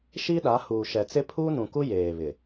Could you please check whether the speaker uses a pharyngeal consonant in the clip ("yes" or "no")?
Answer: no